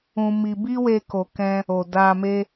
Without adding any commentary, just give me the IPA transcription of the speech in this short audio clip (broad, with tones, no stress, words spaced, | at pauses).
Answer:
ũ˧mi˧ bi˦we˧ko˨kɛ̃˧ | o˨da˧me˦